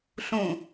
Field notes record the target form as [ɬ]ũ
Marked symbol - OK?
yes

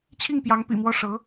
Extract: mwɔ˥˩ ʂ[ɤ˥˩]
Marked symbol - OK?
no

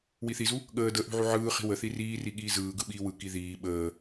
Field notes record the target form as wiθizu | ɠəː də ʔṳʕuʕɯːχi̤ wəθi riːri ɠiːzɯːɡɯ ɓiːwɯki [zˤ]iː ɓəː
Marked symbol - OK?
no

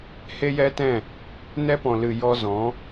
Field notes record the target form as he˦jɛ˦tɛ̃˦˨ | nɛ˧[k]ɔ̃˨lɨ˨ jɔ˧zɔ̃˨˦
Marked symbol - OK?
no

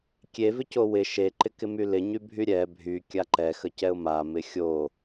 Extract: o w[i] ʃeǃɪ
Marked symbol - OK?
no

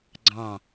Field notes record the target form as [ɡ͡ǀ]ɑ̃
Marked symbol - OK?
yes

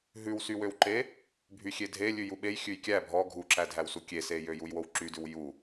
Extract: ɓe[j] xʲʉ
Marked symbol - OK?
yes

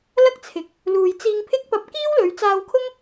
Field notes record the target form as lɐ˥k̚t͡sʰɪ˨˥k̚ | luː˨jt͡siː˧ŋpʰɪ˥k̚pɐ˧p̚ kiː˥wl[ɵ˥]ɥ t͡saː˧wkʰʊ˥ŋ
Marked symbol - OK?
no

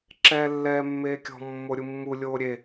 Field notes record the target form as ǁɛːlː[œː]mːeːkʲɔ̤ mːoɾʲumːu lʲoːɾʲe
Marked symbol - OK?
no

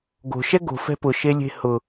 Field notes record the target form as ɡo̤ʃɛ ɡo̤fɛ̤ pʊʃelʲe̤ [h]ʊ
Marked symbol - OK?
yes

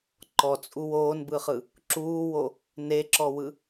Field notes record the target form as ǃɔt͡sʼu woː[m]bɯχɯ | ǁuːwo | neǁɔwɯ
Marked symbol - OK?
no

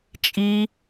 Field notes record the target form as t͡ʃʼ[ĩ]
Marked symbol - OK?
no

